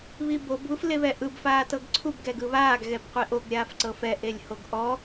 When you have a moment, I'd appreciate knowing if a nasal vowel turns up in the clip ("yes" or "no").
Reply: no